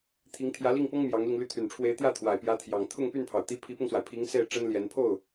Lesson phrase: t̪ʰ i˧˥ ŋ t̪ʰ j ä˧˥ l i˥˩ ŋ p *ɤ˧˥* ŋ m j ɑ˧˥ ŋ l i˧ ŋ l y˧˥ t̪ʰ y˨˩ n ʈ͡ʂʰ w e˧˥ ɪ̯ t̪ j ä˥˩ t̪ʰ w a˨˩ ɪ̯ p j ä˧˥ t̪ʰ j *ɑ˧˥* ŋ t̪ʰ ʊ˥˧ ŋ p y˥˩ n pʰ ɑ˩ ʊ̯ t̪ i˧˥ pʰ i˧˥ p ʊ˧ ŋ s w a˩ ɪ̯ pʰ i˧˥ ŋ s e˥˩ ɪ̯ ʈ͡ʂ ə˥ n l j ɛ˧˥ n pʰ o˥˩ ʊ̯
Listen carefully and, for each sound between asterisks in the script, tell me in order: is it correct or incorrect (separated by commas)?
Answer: incorrect, incorrect